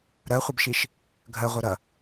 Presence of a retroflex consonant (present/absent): absent